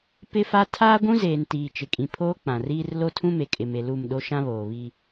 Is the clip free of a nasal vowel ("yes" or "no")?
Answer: no